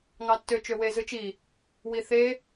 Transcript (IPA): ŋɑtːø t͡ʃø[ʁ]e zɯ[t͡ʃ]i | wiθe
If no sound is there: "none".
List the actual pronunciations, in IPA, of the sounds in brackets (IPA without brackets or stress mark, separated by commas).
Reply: w, t͡ʃ